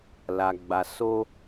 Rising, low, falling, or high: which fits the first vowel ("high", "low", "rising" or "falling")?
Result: low